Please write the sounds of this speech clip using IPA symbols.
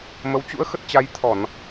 mə˨˦w t͡ɕṵ˧˥ə̯ xə˦˥t̚t͡ɕa˧j t̪ʰɔ˧˩˨n

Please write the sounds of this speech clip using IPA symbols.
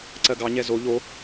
ǀɜɡɑɲɛ zo ʎo

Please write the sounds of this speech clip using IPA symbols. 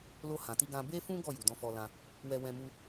lo˧hã˨ti˧ɡã˧ be˦fũ˦ ɡɔ˦˨ju˨ dɔ̃˧fɔ˧lã˧ | wɛ˧wɛ̃˧mu˧

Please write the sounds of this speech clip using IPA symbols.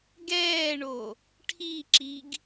ɡɛːɳo | ʈʰiǁiɡ

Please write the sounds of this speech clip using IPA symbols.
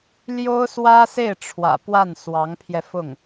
ljo˥ʊ̯swä˥se˥˩ɪ̯ ʈ͡ʂʰwä̰˨˩pwa˥˩n swɑ˧˥ŋpʰjɛ˧fʊ˥˩ŋ

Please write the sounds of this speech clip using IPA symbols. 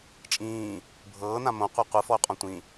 t͡ʃʼĩː | bʱɤːnã mõqʷe qʷɯfɔy̯qʼɔ̃ tʷĩ

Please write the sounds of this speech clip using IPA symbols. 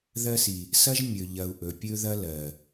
ðɜ˦si˨ | sɐ˦ʒmʲɵ˨ʎɐ˨u̯ ʔɵ˨pʲɵ˦ðɐ˦ lɜ˨

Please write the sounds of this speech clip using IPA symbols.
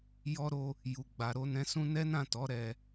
jɔ˧ɾo˧ | ju˨ɡ͡ba˨ ɾo˧nɛ̃˧sũ˦ nɛ˦nã˦˨tɔ˨˦ ɾɛ˧

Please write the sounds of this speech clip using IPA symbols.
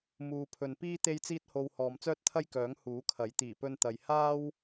muː˨pʰɵ˨npiː˥ t̪e˥jt͡siː˥t̚ho˧w hɔː˨mt͡sœː˥t̚t̪ʰɐ˥jkœː˨˥ŋ huː˨˥kʰɐ˨˥j t̪iː˨˩pɵ˧nt̪ɐ˨j haː˥w

